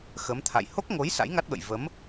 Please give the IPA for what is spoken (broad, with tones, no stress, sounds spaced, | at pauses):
x ə˨˦ m t̪ʰ a̰˧˨ j h o˦˥ k̚ ŋ o˨˦ j s a̰˧˥ j ŋ a˦˥ t̚ ɓ ə̰˧˨ j v ə˨˦ m